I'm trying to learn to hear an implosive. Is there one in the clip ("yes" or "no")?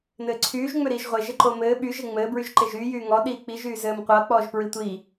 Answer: yes